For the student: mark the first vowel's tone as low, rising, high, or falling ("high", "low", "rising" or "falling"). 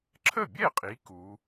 falling